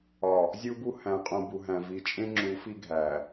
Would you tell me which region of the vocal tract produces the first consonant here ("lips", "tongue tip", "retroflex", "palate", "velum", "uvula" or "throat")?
tongue tip